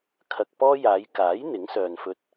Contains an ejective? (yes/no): no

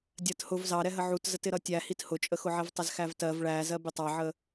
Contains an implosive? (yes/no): no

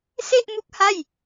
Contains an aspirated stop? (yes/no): no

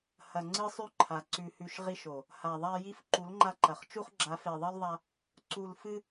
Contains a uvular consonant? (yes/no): yes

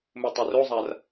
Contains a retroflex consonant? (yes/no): no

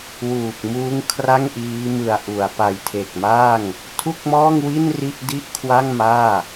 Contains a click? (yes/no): no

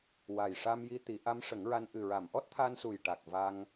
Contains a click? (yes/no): no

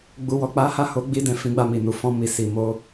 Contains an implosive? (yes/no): no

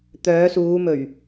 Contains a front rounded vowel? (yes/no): yes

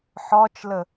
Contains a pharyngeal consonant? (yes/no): yes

